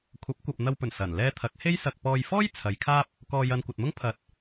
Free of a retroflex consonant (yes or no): yes